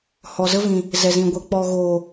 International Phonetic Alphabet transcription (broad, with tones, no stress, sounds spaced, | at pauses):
h ɔ˨ z ə˧ v ĩ˨ | z ɛ˨ z ĩ˨ ɡʷ ə˨ k͡p ɔ˨ ɣ oː˨